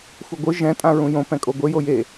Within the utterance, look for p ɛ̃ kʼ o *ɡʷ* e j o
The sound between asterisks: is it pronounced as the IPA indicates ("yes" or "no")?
yes